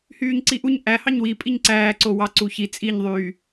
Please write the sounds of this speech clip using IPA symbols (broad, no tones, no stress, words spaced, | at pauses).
hyːɲǀiʔuɲ ʔæhɑɲ wipʼiɲ ǀæːǀo wɑǀuçi t͡sʼiɲðˤyː